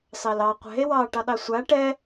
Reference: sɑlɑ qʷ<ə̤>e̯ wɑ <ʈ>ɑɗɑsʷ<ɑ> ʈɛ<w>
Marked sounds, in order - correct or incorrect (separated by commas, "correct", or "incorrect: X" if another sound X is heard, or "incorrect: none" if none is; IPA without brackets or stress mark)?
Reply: incorrect: ɛ̤, correct, incorrect: a, incorrect: none